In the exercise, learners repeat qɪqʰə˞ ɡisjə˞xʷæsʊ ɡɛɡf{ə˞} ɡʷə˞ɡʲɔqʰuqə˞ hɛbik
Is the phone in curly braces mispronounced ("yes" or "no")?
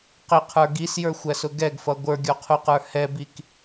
yes